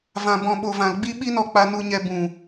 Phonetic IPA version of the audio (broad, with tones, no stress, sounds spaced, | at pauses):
v ã˨ b ɔ̃˨ ɓ o˨ v ã˨ l ɡ͡b i˧ ɓ i˧ n ɔ˨ k͡p a˧ n u˧ ɲ ɛ˧ b ũ˨